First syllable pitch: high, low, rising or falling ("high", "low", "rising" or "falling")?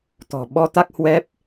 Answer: low